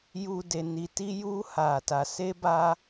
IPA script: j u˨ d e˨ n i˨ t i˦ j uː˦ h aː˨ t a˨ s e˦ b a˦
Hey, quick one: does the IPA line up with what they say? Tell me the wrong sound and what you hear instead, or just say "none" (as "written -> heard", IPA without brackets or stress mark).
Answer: none